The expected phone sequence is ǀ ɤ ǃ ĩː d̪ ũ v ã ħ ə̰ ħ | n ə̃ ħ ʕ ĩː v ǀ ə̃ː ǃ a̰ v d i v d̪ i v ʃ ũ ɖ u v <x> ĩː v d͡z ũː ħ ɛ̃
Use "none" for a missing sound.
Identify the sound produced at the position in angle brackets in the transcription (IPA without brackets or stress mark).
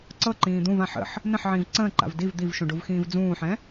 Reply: x